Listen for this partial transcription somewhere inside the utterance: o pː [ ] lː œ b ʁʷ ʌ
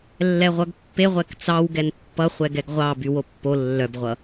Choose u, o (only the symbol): o